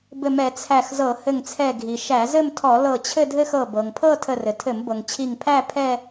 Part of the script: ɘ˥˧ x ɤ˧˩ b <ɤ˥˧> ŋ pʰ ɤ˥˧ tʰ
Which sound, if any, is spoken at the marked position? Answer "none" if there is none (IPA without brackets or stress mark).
ɤ˩